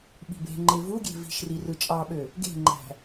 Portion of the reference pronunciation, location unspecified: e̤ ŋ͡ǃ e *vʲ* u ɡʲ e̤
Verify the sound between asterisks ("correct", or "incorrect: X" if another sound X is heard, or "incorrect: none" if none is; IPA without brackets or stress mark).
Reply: incorrect: v